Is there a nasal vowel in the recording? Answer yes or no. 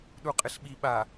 no